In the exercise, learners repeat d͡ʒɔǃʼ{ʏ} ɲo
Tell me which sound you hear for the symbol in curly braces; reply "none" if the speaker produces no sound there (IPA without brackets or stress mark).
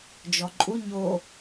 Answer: u